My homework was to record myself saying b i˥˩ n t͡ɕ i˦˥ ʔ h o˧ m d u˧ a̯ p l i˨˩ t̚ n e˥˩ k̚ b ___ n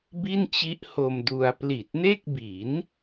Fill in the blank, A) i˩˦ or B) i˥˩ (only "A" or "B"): A